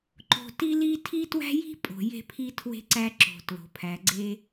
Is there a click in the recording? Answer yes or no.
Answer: yes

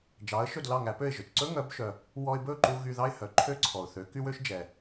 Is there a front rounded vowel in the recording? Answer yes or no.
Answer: yes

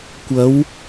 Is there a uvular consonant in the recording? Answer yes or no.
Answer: no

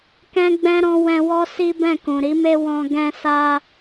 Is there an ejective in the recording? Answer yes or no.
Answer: no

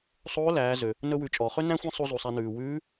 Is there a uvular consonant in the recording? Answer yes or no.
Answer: yes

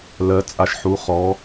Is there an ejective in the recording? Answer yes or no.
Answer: yes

